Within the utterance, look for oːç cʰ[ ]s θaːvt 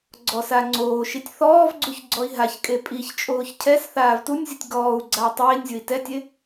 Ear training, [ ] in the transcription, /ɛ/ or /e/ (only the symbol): ɛ